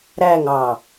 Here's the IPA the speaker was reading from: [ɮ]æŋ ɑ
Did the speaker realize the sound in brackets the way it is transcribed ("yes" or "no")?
no